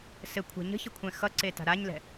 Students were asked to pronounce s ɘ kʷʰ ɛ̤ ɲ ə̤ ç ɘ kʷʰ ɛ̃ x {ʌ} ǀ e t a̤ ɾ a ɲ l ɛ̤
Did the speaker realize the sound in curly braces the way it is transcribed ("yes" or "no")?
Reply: yes